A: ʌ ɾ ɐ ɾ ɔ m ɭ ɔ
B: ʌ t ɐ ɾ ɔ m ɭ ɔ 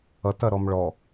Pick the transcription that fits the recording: B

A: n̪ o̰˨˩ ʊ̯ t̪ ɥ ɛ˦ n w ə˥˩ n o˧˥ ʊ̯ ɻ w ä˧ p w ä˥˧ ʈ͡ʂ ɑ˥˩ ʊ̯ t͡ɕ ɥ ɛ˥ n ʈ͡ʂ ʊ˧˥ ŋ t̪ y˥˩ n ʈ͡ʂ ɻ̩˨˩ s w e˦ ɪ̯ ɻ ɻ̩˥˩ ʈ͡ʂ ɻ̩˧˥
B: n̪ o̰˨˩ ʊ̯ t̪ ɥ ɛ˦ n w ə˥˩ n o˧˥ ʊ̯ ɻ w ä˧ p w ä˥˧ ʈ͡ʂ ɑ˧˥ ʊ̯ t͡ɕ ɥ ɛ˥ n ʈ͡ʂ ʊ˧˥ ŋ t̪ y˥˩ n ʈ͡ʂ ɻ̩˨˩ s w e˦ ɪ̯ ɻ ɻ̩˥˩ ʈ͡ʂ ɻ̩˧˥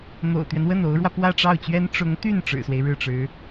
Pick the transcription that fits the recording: A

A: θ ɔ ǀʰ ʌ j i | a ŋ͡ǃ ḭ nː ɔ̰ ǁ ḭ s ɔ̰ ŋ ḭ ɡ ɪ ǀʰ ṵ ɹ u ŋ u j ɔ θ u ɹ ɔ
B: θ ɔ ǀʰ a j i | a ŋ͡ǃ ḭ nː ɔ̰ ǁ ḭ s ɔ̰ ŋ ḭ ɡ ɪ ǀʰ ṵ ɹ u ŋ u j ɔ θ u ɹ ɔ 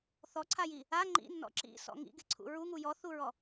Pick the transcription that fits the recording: B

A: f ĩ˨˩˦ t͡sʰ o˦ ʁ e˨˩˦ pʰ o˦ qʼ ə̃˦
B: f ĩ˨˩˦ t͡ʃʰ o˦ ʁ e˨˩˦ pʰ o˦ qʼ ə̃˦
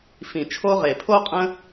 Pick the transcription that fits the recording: B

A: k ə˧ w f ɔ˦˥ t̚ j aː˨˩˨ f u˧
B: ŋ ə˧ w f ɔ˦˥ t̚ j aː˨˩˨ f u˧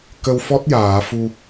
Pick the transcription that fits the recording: A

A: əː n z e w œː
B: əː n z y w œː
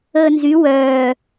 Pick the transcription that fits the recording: B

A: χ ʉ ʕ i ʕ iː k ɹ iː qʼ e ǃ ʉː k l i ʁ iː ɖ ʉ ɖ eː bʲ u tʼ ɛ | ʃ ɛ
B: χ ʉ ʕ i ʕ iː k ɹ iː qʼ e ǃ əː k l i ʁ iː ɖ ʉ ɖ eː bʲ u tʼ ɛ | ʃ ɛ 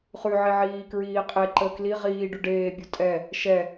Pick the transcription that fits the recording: B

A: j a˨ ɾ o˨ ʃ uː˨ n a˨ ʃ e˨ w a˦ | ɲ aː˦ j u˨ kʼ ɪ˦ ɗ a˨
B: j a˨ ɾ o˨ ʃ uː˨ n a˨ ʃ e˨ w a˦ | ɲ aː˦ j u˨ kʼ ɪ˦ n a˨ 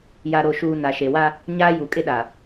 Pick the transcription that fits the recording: A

